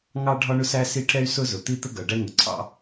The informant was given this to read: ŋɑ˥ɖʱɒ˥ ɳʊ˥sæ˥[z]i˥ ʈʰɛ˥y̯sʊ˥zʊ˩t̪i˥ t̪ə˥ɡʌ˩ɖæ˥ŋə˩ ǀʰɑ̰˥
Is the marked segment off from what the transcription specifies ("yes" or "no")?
yes